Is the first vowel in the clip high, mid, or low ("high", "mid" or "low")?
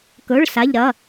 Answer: mid